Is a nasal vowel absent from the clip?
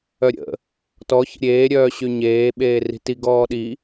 yes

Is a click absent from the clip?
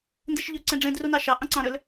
no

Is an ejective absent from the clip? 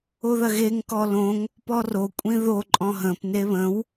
no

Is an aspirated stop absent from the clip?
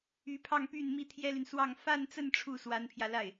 no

